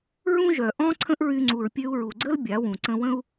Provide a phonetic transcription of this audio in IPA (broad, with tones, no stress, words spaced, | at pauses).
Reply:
ɹũ˦ʒœ˨ ʔɔ̃˦ ǀʰə̃˦ʔɹy˧ ŋ͡ǀu˨ɹpʲø˧u̯ɹu˨ɡ͡ǀə˦l bʲa˨˦wũ˨ ǀə̃˧wə̃˦u̯